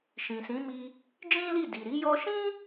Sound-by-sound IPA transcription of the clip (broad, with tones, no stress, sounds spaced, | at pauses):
ʃ ĩ˨ s ĩ˨˦ m i˧ | d͡ʒ ĩ˦ l i˦˨ d i˨ ɾ i˨˦ j ɔ˦ ʃ ĩ˦